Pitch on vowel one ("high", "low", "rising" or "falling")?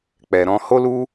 low